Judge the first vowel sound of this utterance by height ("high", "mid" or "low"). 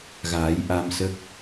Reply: low